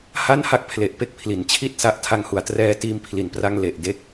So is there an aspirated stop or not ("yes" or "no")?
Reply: yes